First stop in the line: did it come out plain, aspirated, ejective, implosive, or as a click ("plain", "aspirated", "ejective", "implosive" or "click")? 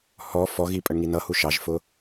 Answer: ejective